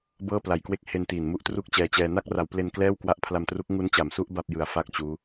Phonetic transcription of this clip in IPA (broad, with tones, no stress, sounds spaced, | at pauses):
b ɤː˥˩ p l a˨˩ j k w e˥˩ k̚ h e˧ n t iː˨˩ n m u˥˩ ʔ t r u˥˩ k̚ t͡ɕ ɛː˧ t͡ɕ ɛː˧ n a˥˩ k̚ r a˩˦ w p l e˧ n k l ɛː˥˩ w k w a˦˥ ʔ pʰ l a˧ m t r u˦˥ k̚ ŋ u˦˥ n t͡ɕ a˩˦ m s u˦˥ ʔ b a˥˩ p̚ j ɯ˨˩ a̯ f a˥˩ k̚ t͡ɕ uː˦˥